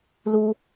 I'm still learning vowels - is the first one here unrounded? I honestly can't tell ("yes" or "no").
no